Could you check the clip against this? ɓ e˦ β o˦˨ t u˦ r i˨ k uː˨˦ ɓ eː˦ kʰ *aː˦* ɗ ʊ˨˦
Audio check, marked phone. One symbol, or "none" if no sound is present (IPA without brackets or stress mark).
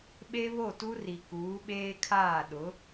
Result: aː˦˨